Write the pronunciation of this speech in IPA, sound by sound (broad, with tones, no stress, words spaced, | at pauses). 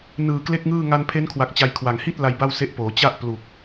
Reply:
nɯː˨˩kle˥˩k̚ŋɯː˥˩ ŋa˧npʰe˦˥nkʰwa˨˩k̚ t͡ɕa˧jkʰwa˨˩ŋ hi˥˩t̚ la˧jba˥˩wse˦˥ʔpoː˩˦ t͡ɕa˦˥ʔ plu˨˩k̚